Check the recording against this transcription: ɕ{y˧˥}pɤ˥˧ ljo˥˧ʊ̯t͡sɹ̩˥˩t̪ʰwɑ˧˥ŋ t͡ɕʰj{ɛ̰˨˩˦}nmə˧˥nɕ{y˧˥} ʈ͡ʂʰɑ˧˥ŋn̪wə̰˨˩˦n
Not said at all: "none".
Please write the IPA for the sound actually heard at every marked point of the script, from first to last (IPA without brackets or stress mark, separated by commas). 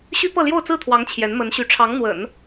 y˥, ɛ˧˥, y˧˥